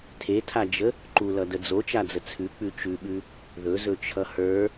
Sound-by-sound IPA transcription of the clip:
tʰ e tʰ a d͡ʒ ə | ǃ u l ʌ d ə d͡z o t͡ʃ a d͡z ə t͡sʰ ʉ k͡p ʉ t͡ʃ ʉ ɓ ʉ | ð ɵ z ɵ t͡ʃʰ ʌ h ə˞

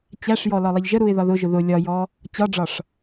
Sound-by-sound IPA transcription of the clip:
t͡ɕ æ ʂ j ɔ l ɒ lˠ ʌ ʎ ʒ ə ɾ u ɪ̯ ð ɒ ð ʊ ʒ ʊ ð ʊ lʲ ɒ j ɔ | t͡ɕ ɒ ɖ͡ʐ ɒ ʂ

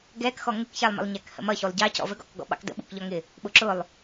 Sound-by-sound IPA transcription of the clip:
ɡ ɛ k x ɔ ŋ ɪ k ç æ lˠ m ə̰ lˠ ɲ æ k h ə̰ m ʌ ç u lˠ ɟ ɑ c ɔ̰ v ə ɡ ɔ̰ k ɡ ɔ̰ ɓ ɑ̰ k d ə̰ ɓ ṵ k ʎ ɒ ŋ ɪ | ɓ ʊ ǁ ʊ lˠ

